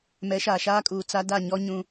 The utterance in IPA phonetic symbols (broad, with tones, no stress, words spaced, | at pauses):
mɛ˨˦ʃaː˨ʃaː˦kʼuː˨ t͡sa˦ da˦˨ɲɔ˦ ɲũ˦